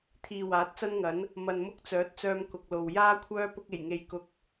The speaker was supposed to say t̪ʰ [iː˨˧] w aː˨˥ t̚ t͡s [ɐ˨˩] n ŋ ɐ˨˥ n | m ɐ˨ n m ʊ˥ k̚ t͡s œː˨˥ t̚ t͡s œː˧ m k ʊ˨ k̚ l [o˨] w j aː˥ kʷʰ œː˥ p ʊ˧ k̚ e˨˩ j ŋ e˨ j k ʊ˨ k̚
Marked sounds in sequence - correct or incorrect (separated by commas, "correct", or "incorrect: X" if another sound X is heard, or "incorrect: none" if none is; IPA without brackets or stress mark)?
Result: incorrect: iː˨, incorrect: ɐ˥, correct